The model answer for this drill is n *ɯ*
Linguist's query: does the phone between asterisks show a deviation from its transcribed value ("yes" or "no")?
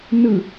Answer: no